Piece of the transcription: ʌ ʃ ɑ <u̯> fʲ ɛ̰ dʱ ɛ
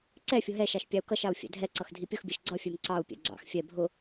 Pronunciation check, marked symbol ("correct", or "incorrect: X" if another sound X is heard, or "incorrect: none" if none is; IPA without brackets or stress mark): correct